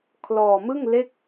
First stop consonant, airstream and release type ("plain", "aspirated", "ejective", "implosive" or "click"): aspirated